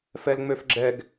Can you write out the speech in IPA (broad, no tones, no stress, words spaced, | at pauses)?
fɛlŋ͡møfɡ͡ǁɛɡ